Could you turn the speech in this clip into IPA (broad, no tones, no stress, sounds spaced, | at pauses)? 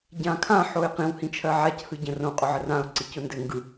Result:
ɟ ã kʰ ã ħ o ɪ̯ q ĩ w h ĩ t͡ʃʰ ɜ ʕ a c h ɯ ɟ ə̃ r õ qʼ ʊ ʕ ə r ã ʊ̯ ǀ i c ʊ n d ɘ ŋ ɡ ɯ